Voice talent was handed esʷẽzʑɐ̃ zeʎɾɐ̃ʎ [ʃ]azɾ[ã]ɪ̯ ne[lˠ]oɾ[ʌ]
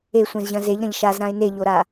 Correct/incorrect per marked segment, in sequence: correct, correct, incorrect: ʎ, incorrect: a

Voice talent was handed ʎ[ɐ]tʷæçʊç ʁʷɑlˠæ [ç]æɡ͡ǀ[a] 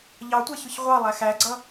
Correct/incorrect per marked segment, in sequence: incorrect: ɑ, incorrect: x, incorrect: ʌ

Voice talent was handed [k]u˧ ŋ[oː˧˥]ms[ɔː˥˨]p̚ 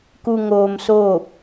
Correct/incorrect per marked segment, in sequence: correct, incorrect: oː˧, incorrect: oː˥˨

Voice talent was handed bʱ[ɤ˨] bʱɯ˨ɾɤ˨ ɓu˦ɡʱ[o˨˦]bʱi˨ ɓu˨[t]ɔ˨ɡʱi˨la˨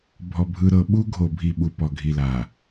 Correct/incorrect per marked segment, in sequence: incorrect: ɔ˨, incorrect: o˨, incorrect: p

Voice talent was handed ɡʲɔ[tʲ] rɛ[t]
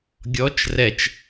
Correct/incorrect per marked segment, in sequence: incorrect: t͡ʃ, incorrect: t͡ʃ

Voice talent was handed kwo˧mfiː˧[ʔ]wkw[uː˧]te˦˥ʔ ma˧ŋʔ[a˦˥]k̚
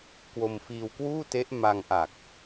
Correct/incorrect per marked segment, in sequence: incorrect: none, incorrect: uː˥˩, incorrect: a˨˩

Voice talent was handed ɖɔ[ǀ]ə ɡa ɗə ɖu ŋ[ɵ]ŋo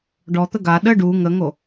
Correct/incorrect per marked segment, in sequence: incorrect: t̪, incorrect: ə

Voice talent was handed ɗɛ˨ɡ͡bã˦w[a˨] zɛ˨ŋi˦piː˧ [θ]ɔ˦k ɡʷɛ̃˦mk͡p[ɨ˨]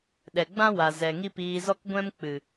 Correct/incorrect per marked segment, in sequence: correct, incorrect: z, correct

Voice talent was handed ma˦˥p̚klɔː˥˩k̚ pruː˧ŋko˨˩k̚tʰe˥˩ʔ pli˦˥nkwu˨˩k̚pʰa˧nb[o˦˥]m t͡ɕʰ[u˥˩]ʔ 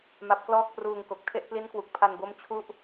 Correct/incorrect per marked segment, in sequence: correct, correct

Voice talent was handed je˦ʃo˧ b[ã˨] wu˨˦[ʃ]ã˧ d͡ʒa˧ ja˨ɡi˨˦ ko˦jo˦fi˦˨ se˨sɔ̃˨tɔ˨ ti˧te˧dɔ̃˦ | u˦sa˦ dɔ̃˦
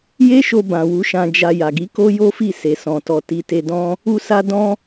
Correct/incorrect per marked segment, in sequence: correct, correct

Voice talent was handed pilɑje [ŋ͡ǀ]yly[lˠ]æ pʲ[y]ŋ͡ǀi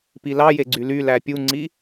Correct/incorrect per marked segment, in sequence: incorrect: ɡ͡ǀ, incorrect: l, incorrect: u

